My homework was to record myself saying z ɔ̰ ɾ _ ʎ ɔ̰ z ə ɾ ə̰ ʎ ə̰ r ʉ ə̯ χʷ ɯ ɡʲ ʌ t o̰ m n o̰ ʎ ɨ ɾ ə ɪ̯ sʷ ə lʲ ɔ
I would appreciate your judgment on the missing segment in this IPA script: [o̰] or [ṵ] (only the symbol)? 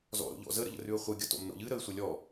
o̰